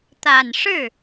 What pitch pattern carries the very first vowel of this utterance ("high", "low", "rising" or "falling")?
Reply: low